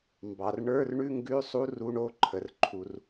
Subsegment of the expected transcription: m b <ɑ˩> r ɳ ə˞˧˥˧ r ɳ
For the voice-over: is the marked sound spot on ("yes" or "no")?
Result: yes